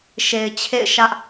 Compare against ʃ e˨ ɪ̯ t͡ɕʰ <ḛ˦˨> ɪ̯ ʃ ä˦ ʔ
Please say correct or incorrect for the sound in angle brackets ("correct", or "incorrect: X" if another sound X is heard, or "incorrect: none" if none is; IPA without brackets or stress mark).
correct